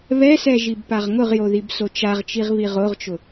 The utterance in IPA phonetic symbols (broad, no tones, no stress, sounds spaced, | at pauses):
β ɛ s ɛ ʒ i b p a ʁ ŋ ʊ ʁ j o ð i b s o t͡ʃ a ʁ t͡ʃ i ʁ β i ʁ o ʁ t͡ʃ ʊ